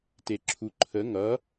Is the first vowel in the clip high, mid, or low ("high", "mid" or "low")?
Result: mid